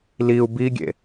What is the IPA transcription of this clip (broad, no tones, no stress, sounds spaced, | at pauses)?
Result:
l i u̯ b i ɡʲ ḛ